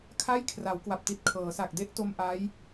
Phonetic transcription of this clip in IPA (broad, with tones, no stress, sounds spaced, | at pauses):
kʰ a˥˩ j kʰ r a˩˦ w k w a˨˩ p̚ t i˨˩ t̚ kʰ ɤː˩˦ s a˨˩ k̚ d e˥˩ ʔ t o˧ m ʔ a˦˥ j